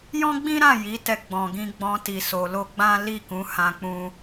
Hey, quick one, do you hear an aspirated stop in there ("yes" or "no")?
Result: no